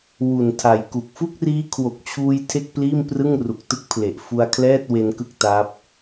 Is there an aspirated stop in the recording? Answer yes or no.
yes